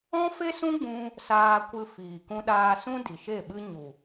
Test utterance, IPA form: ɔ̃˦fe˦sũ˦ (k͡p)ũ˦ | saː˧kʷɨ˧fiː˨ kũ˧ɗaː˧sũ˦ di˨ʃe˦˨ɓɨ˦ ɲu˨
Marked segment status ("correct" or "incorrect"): incorrect